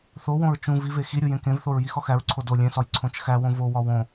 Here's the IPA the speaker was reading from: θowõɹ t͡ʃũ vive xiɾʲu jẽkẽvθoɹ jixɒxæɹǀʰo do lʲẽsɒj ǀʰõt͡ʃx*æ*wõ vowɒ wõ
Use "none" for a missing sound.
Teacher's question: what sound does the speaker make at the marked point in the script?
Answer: æ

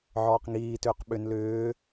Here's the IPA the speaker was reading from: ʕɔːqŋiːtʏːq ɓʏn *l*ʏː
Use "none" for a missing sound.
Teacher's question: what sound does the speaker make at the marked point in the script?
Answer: l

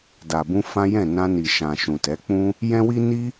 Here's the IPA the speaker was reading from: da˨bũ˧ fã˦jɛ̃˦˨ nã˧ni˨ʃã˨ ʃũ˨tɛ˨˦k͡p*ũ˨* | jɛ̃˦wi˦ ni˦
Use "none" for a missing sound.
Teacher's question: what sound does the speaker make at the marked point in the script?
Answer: ũ˦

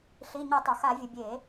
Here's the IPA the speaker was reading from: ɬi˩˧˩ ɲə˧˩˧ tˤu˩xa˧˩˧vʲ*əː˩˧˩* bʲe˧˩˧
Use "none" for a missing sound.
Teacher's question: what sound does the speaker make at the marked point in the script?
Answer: ə˩˧˩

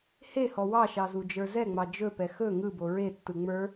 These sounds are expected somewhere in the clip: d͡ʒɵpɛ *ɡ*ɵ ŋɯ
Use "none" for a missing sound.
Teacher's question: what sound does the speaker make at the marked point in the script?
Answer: x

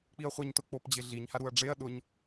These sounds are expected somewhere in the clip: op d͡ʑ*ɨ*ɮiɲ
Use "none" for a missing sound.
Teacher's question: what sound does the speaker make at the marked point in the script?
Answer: ɪ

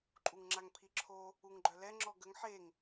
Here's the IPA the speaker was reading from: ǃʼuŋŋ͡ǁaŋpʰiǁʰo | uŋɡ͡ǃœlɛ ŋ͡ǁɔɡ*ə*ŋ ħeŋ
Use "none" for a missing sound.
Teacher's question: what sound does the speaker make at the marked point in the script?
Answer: ə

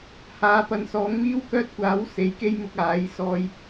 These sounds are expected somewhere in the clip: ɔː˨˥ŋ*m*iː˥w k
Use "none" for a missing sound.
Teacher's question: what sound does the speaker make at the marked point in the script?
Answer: m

